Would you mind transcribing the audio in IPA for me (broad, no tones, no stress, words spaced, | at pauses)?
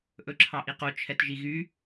ʔɵǁʰɑʔiqo t͡ʃʰɛtʒiɣy